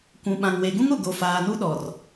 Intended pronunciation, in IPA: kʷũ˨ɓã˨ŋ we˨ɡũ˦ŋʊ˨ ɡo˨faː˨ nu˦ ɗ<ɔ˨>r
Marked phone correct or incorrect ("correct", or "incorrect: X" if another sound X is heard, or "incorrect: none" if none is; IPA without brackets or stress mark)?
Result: correct